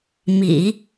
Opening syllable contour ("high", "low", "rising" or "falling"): low